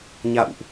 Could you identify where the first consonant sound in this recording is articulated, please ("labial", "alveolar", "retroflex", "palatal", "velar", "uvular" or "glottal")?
palatal